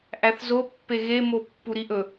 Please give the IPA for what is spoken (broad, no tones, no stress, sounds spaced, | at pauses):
ʔ æ θ z o pː e ɣ e m o pː u ɾ i ʔ ɵ